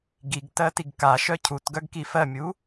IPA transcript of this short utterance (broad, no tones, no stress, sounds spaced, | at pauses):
ɡ i ɡ t ɜ t i ɡ k a ʃ œ cʰ u t ɡ œ ɡ k i f ɜ mʲ u